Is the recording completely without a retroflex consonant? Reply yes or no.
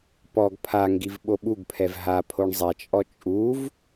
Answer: no